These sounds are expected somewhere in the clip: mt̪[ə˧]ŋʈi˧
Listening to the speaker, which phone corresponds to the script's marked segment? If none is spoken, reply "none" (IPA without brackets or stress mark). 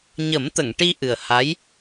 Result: ə˨˩˨